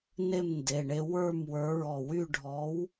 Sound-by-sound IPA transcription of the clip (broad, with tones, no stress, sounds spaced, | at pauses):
n e˥˨ m n d e˩˧˩ ɳ e˧ w ə˞˥˨ m w ə˞˨˥ ɹ ɔ˧˩ w y˥˨ ɖʱ ɔ˨˥ w